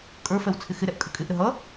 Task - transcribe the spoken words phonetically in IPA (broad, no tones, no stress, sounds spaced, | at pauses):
kʼ ə˞ f ɛ w t͡sʰ ɪ x ɪ ɾ ɛ ʔ kʼ ə kʼ ɪ ʔ ɾ ə ɦ ʌ